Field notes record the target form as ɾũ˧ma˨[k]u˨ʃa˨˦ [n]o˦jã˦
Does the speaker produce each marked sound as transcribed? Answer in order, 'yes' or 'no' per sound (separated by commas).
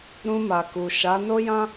yes, yes